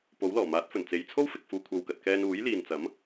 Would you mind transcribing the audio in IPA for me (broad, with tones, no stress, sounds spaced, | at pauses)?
p o˨˥ w l ɔː˨˩ m aː˨˥ t̚ f ɵ˨˩ n t͡s e˨ j t͡sʰ o˥ w f ɪ˨ k̚ f uː˨ kʷʰ ɐ˨ w k ɐ˨ t̚ k ɛː˧ n uː˨˥ j l iː˨ n t͡s ɐ˨˥ m